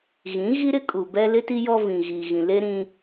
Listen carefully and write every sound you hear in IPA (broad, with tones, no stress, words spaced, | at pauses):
ɣĩ˨˦ ɣi˦ɾɪ˦ kʼu˨bɛ˦ lɪ˦ti˦ jɔ˦vĩ˨ ɣiː˨ɣĩ˨le˦ɾĩ˦